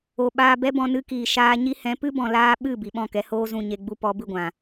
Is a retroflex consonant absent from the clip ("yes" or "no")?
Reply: yes